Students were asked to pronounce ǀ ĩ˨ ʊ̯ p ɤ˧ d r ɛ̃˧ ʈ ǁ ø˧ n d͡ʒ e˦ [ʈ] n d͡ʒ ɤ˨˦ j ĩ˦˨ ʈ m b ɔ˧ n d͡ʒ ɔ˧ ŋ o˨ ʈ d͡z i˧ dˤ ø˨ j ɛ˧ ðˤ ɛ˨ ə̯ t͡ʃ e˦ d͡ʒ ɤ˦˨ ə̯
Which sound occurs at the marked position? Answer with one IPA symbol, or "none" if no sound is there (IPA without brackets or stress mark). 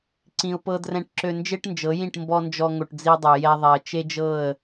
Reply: ʈ